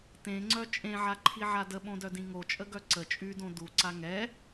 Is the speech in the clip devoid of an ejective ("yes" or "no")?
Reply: no